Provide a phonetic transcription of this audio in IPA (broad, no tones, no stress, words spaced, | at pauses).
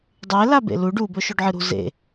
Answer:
dˤe labḛlu ɖu bɵʃoɖʕɨɾṳ zḛ